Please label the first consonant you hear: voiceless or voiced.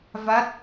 voiced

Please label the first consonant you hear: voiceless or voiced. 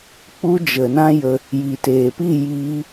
voiceless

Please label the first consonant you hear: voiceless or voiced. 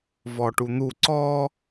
voiced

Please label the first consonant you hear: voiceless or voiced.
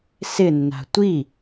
voiceless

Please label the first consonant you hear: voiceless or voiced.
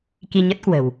voiceless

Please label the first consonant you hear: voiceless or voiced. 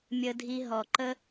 voiced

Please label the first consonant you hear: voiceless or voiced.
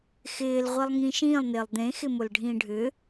voiceless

